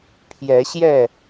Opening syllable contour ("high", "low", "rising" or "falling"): rising